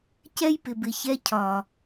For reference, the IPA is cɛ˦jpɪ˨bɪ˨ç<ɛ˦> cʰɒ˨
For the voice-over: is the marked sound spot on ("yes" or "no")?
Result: no